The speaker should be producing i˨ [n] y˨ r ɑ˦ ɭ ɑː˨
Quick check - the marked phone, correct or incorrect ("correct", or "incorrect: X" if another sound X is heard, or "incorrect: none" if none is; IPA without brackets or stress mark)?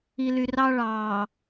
incorrect: l